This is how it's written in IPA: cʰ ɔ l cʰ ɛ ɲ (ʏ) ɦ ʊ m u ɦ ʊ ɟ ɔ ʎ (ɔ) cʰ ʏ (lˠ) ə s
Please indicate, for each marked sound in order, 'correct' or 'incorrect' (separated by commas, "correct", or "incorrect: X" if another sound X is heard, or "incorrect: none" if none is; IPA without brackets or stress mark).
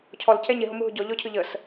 incorrect: ɪ, correct, incorrect: ʎ